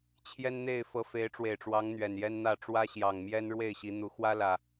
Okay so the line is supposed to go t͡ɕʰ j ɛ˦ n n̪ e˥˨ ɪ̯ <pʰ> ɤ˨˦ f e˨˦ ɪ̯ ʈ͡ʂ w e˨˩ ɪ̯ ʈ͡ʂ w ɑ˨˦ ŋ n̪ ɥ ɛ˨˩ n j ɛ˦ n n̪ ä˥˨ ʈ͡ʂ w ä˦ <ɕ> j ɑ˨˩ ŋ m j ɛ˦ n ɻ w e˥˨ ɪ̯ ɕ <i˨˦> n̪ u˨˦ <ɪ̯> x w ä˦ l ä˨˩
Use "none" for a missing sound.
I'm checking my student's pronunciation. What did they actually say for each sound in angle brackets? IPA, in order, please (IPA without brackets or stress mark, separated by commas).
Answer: f, ɕ, i˨˦, none